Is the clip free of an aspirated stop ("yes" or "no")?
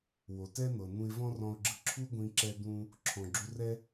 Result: no